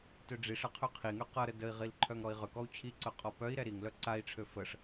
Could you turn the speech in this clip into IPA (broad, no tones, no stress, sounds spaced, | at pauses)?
t ø ɖ͡ʐ i ʂ ə qʰ ø qʰ i ŋ ø q ʌ ɾ ə d ə i̯ ʁ i l ǃʰ œ ŋ ɾ ɔ i̯ ʁ ʏ k ɔ u̯ t͡ɕʰ i ǀ œ qʼ ɔ p œ i̯ ɾ ɛ ɾ i ŋ l œ ǀ a i̯ ʈ͡ʂʰ ø f ə ʂ